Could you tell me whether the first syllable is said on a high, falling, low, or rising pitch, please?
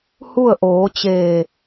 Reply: falling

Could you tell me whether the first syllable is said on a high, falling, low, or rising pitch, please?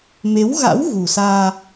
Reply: rising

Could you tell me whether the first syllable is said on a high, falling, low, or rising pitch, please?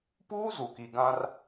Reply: high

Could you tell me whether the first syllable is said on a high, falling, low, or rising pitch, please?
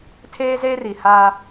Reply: high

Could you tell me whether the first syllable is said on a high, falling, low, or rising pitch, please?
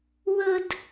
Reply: high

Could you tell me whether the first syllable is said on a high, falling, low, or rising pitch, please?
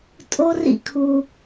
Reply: high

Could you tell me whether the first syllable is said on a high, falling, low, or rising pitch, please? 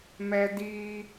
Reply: high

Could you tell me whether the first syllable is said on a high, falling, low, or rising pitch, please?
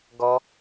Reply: high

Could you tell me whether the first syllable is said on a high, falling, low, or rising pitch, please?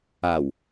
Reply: low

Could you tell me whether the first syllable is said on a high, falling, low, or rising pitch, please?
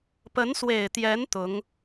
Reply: rising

